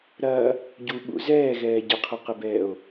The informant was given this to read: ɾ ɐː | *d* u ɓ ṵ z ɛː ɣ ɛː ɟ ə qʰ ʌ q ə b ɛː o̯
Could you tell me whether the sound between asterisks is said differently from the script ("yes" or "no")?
yes